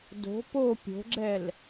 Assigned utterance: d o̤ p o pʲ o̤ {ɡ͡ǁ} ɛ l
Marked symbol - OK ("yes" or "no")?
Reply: yes